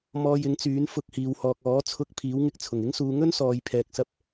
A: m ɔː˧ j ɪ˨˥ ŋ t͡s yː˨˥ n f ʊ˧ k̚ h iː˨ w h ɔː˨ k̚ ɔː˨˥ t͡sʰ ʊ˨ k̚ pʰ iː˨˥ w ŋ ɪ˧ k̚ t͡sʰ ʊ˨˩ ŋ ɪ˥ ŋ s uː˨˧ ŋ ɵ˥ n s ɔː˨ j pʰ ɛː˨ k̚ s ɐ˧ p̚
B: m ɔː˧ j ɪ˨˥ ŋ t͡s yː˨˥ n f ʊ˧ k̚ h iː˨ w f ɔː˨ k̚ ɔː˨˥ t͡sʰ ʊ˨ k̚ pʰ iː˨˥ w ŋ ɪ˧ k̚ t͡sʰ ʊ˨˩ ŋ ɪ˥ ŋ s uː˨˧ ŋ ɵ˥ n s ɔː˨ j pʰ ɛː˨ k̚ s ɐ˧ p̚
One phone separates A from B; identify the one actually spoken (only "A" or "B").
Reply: A